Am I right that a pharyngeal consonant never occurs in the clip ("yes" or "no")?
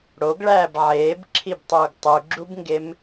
no